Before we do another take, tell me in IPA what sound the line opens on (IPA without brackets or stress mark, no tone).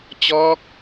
t͡ɕ